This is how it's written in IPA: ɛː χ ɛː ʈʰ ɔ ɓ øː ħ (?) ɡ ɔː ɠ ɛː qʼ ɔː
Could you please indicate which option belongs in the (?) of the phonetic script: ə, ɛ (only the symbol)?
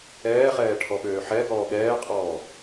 ɛ